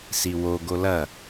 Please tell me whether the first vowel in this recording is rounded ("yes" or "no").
no